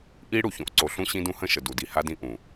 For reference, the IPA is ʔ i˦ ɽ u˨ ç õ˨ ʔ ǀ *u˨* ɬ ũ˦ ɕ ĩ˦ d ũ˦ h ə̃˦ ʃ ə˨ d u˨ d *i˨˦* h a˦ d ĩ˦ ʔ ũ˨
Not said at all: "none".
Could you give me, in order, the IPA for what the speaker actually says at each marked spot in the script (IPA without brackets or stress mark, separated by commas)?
o˨, i˨